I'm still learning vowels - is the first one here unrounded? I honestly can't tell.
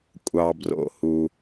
yes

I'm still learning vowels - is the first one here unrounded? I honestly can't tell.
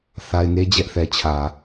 yes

